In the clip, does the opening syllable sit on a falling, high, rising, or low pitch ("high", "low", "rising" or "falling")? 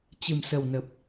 low